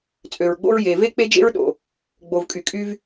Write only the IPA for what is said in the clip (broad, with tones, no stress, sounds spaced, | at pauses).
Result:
t͡sʼ ø˩ ɹ ɡ͡b o̰˥ ɹ j e˩ v e˥ k͡p e˥ d͡ʒ ḛ˥ ɹ ɗ o̰˩ | ɡ͡b o˩ v kʼ y˩ kʼ y˧ v